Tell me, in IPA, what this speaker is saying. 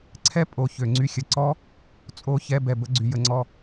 ǀʰ ɛ˦ pʼ o˨ ç ø˨ ŋ͡ǀ y˧ xʲ ə˨ ǀ ɔ˦ | t͡sʼ o˦˨ ç ɛ˧ b ɛ˨ b ə˦ ɡ͡ǀ y˨ j ə˧ ŋ͡ǀ ɔ˧

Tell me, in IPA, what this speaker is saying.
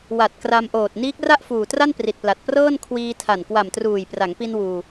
w a˨˩ t̚ k r a˧ m ʔ oː˨˩ t̚ n iː˦˥ k̚ r a˥˩ ʔ f uː˨˩ t r a˥˩ n p r i˨˩ t̚ p l a˨˩ t̚ p r ɤː˥˩ n kʰ w iː˧ tʰ a˨˩ n k w a˨˩ m t r uː˨˩ j p r a˩˦ ŋ p i˧ n w uː˧

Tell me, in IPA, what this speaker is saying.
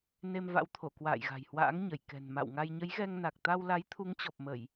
n e˧ m v a̰˧˥ w t̪ʰ o˧˩ k w a̰ː˧˨ j ɣ a̤˨˩ j h w a̰ː˧˥ ŋ ɲ ə˧˩ j k ɛ̤˨˩ n m a̰˧˨ w ŋ a˧ j ɲ ə˨˦ j ɣ ɛ˧ ŋ n a˨˩ k̚ t̪ a˧ w l a˨˦ j t̪ʰ u˨˦ ŋ t͡ɕ ɔ˨˩ p̚ m ə˧˩˨ j

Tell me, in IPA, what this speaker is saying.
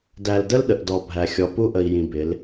d æ˨ l d ə˦ l ɗ ə˨ ʔ d ɔ˨ bʱ æ˨ xʲ ɔ˨ p u˦ ʔ ə˨ i̯ j ĩ˨ b ɪ˨˦ l

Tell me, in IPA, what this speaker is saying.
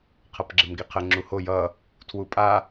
qʰ ʌ p ɡ͡ǁ ɘ m ɡ i qʰ ə ŋ͡ǁ u h o j ʌ | tʰ w u pʼ a

